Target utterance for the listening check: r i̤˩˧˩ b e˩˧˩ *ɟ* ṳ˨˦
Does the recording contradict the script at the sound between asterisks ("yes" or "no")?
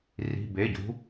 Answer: no